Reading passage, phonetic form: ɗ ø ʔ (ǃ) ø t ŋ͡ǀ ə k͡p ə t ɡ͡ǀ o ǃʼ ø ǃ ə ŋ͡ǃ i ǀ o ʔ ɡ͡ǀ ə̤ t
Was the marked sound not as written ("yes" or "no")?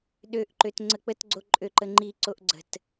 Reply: no